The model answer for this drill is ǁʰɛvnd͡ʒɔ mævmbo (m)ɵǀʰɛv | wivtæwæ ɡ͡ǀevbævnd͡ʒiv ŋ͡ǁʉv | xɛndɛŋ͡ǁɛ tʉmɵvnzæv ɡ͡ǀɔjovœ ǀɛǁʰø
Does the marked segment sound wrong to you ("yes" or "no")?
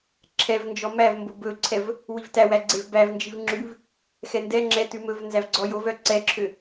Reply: yes